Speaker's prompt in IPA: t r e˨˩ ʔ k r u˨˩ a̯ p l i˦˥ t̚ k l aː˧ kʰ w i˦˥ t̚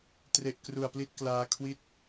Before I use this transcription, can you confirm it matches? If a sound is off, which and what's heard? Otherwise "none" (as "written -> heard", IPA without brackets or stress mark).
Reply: none